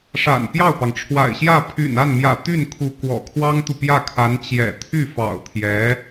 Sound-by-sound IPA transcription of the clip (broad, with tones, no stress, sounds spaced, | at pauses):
ʂ a̰˨˩ n p j ɑ˥˩ ʊ̯ p ɑ˩ ŋ ʈ͡ʂʰ w a̰˨˩ ɪ̯ ɕ j ä˥˩ pʰ y̰˨˩ n a˥˩ n m j ä̰˨˩ t̪ y˥˩ n kʰ u˧˥ k w ɔ̰˨˩ kʰ w ɑ˥ ŋ t̪ u˨ p j ä˥˩ kʰ a˧˥ n t͡ɕ j ɛ̰˨˩ t̪ʰ y˥˩ f ɑ̰˨˩ ʊ̯ t̪ʰ j ɛ˧˥